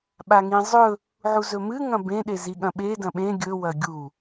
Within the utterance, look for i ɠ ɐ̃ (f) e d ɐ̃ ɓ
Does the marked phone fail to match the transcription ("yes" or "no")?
yes